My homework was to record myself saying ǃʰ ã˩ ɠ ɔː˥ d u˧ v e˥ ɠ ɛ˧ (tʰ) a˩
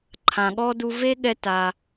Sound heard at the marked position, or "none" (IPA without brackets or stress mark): t